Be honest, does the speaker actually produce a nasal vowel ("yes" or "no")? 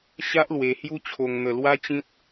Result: yes